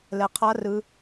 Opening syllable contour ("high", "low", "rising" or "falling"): low